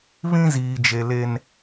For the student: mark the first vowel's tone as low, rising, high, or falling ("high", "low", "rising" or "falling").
high